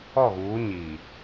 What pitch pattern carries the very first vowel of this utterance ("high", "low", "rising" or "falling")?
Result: falling